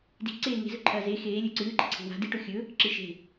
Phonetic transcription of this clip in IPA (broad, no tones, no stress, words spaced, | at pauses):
di̤ǀeː ŋe̤zɵǃʰɐː ze xeːlʲɵ ǀɨːǃe̤ ǀʰe̤wa̤ diʈo xʲɵ | ǁɨʃe̤